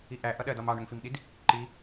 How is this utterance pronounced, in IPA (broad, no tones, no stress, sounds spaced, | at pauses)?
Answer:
i ʔ æ ʔ ʌ ɗ ɜ d ɒ m ɑ ɳ ʊ ŋ f i m ɗ i d | ǃ i